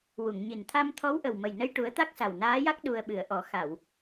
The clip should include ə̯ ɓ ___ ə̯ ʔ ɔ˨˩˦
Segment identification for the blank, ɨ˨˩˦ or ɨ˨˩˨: ɨ˨˩˦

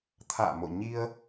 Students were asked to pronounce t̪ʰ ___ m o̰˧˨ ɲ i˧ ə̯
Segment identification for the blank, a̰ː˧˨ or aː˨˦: a̰ː˧˨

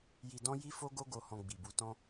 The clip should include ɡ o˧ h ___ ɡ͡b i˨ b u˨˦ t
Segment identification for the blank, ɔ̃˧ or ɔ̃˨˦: ɔ̃˧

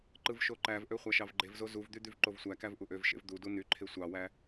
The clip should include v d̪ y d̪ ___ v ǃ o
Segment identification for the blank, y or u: y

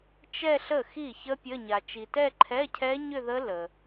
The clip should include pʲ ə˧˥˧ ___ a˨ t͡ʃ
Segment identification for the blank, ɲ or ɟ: ɲ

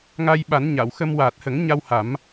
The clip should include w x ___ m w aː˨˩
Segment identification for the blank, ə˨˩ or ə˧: ə˧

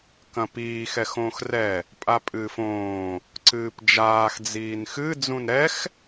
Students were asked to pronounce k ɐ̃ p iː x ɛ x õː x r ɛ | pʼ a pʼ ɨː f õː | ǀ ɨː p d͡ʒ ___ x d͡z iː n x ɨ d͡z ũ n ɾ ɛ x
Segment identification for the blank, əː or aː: aː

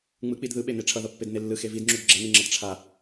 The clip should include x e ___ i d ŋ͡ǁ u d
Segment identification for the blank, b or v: v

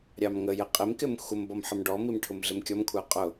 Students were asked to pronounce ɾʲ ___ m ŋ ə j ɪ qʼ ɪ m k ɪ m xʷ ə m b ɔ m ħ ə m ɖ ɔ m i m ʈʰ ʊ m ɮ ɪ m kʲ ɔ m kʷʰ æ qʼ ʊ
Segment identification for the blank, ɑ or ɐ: ɑ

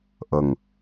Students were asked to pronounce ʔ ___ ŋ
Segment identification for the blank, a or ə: ə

